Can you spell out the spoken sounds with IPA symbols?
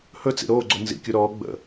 h ɵ t͡s ḭ ɾ oː ɡ͡ǀ o n z ḭ kʲ u ɾ ɔː ɡ͡b ə̰

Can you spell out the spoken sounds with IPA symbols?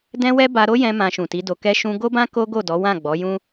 d ɛ̃˦ w ɛ˦ b a˧ ɾ o˦ j ɛ̃˧ m ã˧ ʃ ũ˨ t i˨˦ d o˧ k ɛ˦ ʃ ũ˦ ɡ o˦ b ã˦ k o˦ ɡ o˦˨ d ɔ˨˦ w ã˦˨ ɡ͡b ɔ˨˦ j ũ˦

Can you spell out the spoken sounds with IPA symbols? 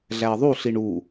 ɮ æ ə̯ ðˤ u ɬ i ɳ u

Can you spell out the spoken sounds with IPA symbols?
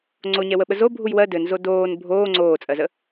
ŋ͡ǀ o ɲ ɛ w ə ɓ ə z o bʱ u j w ɜ d ɘ n z o d oː n bʱ oː ŋ͡ǀ oː t͡sʼ ɜ z ə

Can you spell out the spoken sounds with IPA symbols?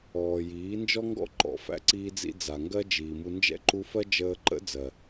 ɔː˨ j iː˨˦ n d͡ʒ ɔ˦ ŋ ɡ ɔ̰˦ ǃ ɔ̰˧ f æ̰˦ ǀ iː˧ d͡z ḭ˧ d͡z a˨ ŋ ɡ ɜ˦ d͡ʒ iː˨ m u˧ n d͡ʒ ɛ̰˦ ǃ u˧ f ɜ˦ d͡ʒ əː˧ ǃ ə̰˦ d͡z ɜ˨

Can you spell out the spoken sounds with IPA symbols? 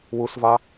w u s v ɑ

